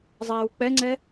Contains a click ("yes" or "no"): yes